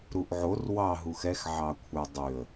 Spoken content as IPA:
ɾ u ʔ ʕ o r w ɑ ɦ u x ɛ x ʕ ɑ kʷʰ ɛ dˤ ʉ ə̯

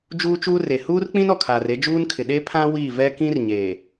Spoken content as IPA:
d͡ʒ uː˦ t͡ʃ uː˦ r e˨ h uː˦ r k͡p ĩ˦ n ɔ˨ kʰ aː˨ r e˦ d͡ʒ uː˦ n kʰ ɪ˨ ɗ e˦ pʰ ã˦ w i˦˨ v ɛ˦ k ĩ˦ r ɲ eː˨

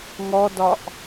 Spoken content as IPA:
ŋ ɔ d ɒ ʔ

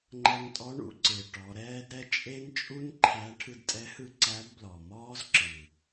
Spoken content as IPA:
ŋ͡ǃ ɛ˧ ŋ tʼ ɔ˧˥ ɳ ṵ˩˧ ǀ e˩ ʈ ɔ˩˧ ɾ ɛː˥ d ɾ ɛ˥ t͡ʃʼ e˥ n t͡ʃʼ u˥ n ǃʰ æ˧˥ ʈʰ ɯ˧ d tʼ ɛ˧˥ h ɯ˧˥ ǀ æ˧˥ d b l ɔ˩ m ɔː˥ z ǁ ɨ˩

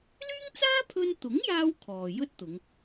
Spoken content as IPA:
l yː˥ ŋ t͡s aː˥ pʰ ɵ˧ n t̪ ʊ˨˥ ŋ j aː˥ w kʰ ɔː˨ j ɵ˥ t̚ t̪ ʊ˨˧ ŋ

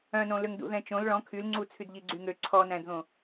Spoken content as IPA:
œ̃ n õ l ø ŋ d ṵ ð ɛ̃ t͡ʃ õ l ɭ ɔ̃ kʰ y l ŋ͡ǀ u t͡sʰ y d ʎ i ɡ͡ǀ y ŋ ø ǀʰ ɔ n æ̃ d ð õ

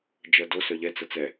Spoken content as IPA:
d͡ʒ ɜ d o s œ ʎ ɛ t͡s ə t͡s ɛ

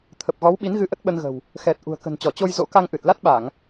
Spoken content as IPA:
t̪ʰ ə˨˩ p̚ ɣ ɔ˨˦ w ɓ i˨˦ n ɣ ɨ˧ ʔ ə˦˥ t̚ ɓ ə˧ n ɣ ə̤˨˩ w | x ɛ˨˩ t̚ ʔ ṳ˨˩ ə̯ k ə̤˨˩ n t͡ɕ ɔ˧˩ t͡ɕ o˧ j z o̰˧˥ k a˧ ŋ ʔ ɨ˨˩ t̚ l a˦˥ t̚ ɓ a˧˩˨ ŋ

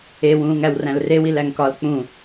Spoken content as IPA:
e w ũː ŋ æ w r æ̃ l r e w i l æ ŋ k ɒ l k͡p ũ

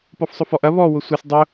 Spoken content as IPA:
p ɔ f sˤ ʊ f ɔ ʔ ɐ β ɔ w ʊ sʷ e s dˤ ʊ

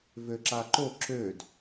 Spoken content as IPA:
v ø ǁ a ǃ o ǁ ø d

